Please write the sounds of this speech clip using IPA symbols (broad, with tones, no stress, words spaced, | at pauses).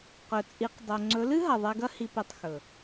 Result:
qɵ˨t͡sʼi˨˦q dˤo˨ ŋ͡ǀɵ˨˦lɨ˦ ɦɐ˨ðˤe˧ɡɐ˦ hi˧pi˧tˤxɵ˨